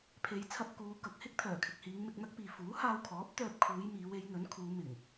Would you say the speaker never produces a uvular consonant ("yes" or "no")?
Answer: yes